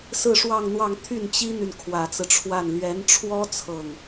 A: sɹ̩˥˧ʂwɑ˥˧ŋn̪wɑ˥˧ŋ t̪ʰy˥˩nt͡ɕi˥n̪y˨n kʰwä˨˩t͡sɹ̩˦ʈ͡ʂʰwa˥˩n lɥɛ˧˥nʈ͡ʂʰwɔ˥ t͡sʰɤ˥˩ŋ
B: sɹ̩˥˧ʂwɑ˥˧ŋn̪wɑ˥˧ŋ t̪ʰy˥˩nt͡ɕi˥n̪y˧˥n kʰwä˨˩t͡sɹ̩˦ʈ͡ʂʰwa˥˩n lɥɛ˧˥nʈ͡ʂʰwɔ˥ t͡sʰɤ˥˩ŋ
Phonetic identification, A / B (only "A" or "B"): A